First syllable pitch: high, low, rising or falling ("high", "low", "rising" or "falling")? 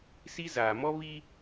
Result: high